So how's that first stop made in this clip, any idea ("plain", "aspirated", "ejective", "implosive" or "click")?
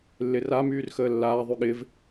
implosive